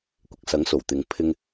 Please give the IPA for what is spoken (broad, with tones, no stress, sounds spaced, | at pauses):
kʷ ɪ˨ k̚ s ɐ˨˥ ŋ s o˨˩ w t̪ ɪ˨ ŋ pʰ ɪ˧ ŋ